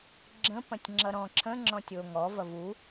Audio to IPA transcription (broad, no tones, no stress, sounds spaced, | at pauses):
ɡ͡ǁ ə̃ p ɐ̃ tʲ ŋ͡ǁ ʌ ɾ ɔ̃ ǁʰ ə̃ ŋ͡ǁ ɔ̃ tʲ o ŋ ɔ v ɐ v u